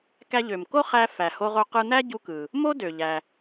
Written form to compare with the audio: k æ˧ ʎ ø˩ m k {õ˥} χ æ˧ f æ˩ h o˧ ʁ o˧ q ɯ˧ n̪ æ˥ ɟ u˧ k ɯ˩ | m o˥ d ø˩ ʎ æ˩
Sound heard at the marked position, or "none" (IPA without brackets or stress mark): o˥